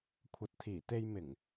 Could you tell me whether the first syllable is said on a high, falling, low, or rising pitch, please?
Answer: low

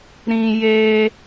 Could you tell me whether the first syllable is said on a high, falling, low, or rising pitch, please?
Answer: low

